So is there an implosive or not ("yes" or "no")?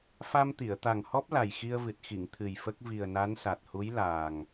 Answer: no